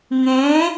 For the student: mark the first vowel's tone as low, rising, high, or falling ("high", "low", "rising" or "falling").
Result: rising